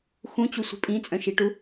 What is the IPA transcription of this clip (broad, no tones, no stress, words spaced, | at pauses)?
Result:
xũt͡ɕusʷi̤ pʼĩt͡sʼœ̃ʃiʈu